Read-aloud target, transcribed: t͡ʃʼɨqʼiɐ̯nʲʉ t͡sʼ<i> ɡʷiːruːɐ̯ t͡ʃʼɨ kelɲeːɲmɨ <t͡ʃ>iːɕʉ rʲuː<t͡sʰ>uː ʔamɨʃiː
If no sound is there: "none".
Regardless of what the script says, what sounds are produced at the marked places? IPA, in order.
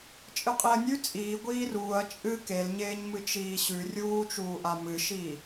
iː, t͡ʃ, t͡ʃ

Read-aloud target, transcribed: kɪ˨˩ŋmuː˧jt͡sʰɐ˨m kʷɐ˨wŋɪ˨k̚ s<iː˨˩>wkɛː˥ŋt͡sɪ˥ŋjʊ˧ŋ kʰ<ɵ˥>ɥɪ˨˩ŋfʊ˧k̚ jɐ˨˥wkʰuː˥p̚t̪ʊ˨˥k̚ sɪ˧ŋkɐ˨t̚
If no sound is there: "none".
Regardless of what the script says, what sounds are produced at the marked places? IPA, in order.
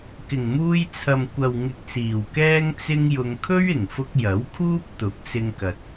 iː˨˩, ɵ˥

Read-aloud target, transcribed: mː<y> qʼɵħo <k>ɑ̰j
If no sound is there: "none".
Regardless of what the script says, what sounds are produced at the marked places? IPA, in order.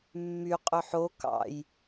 y, k

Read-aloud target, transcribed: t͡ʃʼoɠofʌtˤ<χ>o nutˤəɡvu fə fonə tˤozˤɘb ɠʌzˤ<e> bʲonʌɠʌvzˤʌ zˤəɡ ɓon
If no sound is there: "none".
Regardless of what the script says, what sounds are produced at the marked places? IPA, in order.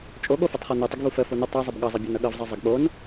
χ, ɘ

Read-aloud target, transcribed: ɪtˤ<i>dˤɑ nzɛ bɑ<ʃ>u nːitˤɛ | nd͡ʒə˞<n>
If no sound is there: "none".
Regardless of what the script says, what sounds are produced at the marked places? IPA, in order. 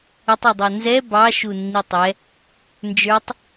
i, ʃ, tˤ

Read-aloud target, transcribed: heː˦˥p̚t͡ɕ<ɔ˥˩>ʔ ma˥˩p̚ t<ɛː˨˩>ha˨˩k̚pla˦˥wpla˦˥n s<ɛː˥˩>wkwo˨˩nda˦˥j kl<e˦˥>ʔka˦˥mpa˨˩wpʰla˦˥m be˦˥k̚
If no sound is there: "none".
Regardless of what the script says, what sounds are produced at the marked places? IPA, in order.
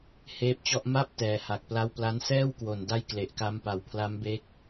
ɔ˥˩, ɛː˨˩, ɛː˥˩, e˨˩

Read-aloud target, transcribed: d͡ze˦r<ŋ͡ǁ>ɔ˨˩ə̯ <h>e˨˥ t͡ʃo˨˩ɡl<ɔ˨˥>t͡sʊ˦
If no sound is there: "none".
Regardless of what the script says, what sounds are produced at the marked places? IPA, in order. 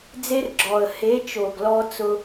ɡ͡ǁ, h, ɔ˦

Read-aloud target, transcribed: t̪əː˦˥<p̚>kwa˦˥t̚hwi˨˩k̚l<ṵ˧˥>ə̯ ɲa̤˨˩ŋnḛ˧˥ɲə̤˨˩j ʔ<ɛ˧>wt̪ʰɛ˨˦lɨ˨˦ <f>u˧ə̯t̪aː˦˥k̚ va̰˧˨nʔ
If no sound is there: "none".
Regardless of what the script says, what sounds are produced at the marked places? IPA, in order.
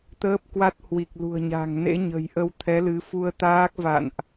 p̚, ṳ˨˩, ə˧, f

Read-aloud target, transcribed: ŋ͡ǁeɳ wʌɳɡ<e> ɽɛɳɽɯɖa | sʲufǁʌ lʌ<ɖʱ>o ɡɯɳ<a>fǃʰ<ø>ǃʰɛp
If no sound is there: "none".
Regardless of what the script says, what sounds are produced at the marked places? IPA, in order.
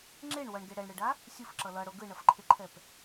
e, ɽ, ʌ, e

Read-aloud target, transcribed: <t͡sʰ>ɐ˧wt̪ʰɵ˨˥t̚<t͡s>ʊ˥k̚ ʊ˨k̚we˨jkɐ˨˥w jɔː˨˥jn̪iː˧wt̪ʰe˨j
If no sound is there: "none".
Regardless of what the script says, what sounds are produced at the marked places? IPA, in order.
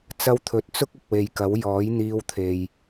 t͡s, t͡s

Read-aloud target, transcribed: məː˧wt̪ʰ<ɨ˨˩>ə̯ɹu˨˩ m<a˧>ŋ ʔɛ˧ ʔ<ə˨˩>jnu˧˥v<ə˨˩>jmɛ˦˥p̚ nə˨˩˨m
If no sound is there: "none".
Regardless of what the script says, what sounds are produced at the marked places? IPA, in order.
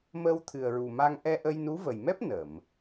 ɨ˨˩, a˧, ə˧, ə˨˩

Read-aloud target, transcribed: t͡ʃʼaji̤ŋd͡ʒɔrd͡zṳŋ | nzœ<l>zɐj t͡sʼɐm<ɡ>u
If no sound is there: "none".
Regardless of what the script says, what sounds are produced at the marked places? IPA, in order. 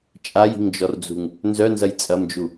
n, d͡ʒ

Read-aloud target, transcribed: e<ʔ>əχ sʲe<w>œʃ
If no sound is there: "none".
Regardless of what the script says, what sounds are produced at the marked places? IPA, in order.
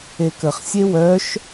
k, w

